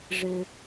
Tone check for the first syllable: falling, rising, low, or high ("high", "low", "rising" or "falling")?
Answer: low